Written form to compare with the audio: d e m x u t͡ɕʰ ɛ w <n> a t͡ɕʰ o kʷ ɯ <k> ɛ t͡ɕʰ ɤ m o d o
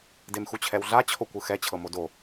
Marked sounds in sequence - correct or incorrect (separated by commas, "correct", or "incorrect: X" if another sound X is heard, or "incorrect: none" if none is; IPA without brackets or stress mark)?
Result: incorrect: ɮ, incorrect: x